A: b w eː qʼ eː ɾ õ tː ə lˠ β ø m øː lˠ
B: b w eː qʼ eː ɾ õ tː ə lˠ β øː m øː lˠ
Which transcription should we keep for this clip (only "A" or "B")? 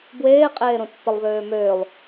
B